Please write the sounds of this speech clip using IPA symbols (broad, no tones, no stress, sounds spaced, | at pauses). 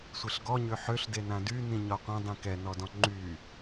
sʷ e ɬ ɡ ɔ ɲ ø ħ ø ɬ d e n ã d y n ĩ ɲ ɔ qʷ ẽ dˤ ĩ k ɛ n ɔ d ɔ̃ ŋ͡ǃ y